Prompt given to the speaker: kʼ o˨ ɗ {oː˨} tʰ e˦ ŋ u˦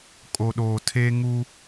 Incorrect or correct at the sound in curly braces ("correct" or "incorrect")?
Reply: correct